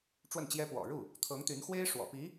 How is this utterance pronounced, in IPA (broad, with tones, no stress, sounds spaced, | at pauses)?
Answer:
ʈ͡ʂ w ə˥˩ n t͡ɕ j ɛ˥ p w ɔ̰˨˩ ɻ u˥˩ | t̪ʰ ɤ˧˥ ŋ t̪ y˧˥ n x w e˥ ɪ̯ ʂ w ɔ̰˨˩ p i˧˥